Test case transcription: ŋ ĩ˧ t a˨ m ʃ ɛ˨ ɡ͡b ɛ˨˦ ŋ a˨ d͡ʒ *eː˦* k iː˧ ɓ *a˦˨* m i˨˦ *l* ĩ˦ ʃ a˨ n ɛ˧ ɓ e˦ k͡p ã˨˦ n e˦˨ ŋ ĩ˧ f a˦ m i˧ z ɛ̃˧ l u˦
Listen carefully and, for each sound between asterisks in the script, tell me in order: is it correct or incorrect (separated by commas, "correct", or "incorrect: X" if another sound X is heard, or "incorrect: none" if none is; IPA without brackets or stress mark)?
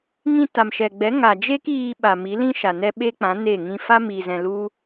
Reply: incorrect: e˦, incorrect: a˨, correct